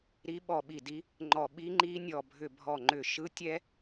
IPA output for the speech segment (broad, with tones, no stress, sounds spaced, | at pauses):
ɾ i˦˥ ɓ ɔ˧˩ ɓ i˧˩ d i˦˥ | ŋ͡ǃ ɔ˧˩ ɓ i˦˥ ŋ͡ǃ i˦˥ nʲ ɔ˧˩ bʱ ʏ˧˩ bʱ ɔ˧˩ ŋ͡ǃ ʏ˧˩ ʃ ɯ˦˥ tʲ ɛ˦˥